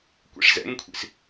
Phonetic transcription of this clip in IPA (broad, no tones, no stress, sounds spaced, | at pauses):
kʷ ḭ ʂ z ɛ̰ ŋ kʷʰ ḭ s